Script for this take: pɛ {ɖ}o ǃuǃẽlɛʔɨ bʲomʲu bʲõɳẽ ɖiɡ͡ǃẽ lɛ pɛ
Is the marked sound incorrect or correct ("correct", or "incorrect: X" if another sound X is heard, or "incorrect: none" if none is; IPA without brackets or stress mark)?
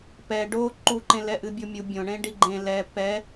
correct